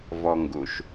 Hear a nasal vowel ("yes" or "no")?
no